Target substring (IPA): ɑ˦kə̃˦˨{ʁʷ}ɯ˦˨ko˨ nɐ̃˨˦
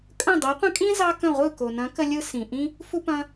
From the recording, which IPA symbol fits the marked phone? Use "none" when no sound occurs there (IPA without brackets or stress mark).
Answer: ʁʷ